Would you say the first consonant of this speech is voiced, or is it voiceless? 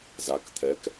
voiced